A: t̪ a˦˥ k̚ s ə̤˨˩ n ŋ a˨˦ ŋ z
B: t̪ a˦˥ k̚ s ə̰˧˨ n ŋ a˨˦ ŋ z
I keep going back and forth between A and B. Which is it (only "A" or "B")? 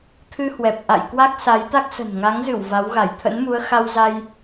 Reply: A